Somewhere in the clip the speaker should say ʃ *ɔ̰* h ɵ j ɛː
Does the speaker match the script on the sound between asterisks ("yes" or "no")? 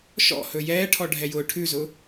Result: yes